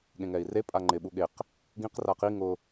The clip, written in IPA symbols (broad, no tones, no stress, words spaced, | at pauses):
ɠẽŋɛi̯re pʼaŋ͡ǃɪ ɓuɠeq | ɡĩq raqi ŋʊ